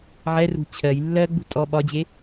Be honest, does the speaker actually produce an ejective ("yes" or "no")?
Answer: yes